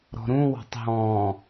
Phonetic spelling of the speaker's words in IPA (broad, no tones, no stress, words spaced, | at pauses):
ɾɔ̤ɾũ wɑ̤tˤɦɔ̃